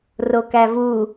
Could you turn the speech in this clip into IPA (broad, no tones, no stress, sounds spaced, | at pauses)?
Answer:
r o k æ v u